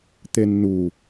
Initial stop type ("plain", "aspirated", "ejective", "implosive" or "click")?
plain